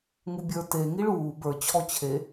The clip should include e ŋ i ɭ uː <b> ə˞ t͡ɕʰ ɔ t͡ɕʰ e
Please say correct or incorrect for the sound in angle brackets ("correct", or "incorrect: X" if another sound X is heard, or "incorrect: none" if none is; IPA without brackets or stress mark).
correct